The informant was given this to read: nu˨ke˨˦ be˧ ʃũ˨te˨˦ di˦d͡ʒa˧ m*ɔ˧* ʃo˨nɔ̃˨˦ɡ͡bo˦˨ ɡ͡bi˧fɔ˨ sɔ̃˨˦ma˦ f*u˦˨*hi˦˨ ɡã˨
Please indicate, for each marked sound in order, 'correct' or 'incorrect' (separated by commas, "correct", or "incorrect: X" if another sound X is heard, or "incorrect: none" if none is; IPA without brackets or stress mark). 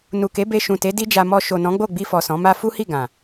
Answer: correct, incorrect: u˦